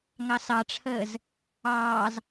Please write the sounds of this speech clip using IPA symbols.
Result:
ŋ ɑ s ɑ ʈ͡ʂʰ əː z | ɑː z

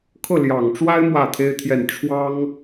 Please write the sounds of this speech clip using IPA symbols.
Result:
kʰ ɤ˥˩ l j ɑ˨˩ ŋ ʈ͡ʂ w a˥ ɪ̯ m w ä˥˩ t̪ʰ e˥ ɪ̯ t̪ʰ j ɛ˥˩ n ʈ͡ʂʰ w ɑ˥ ŋ

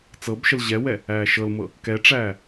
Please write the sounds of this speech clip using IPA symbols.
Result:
t͡s ɤ b ʃ ə l ʑ ɛ w ɛ | æː ʃ ɤ l m ɤ | k ɛ ʈ͡ʂ æː

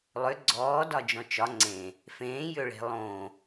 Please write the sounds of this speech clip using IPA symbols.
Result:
lˠ ʏ ɡ͡ǀ ɔː d ɒ d͡ʒ ɔ̃ t͡ʃ ɒ ŋ͡ǀ ẽ | f ẽː j ʏ ɭ e̤ lˠ õ

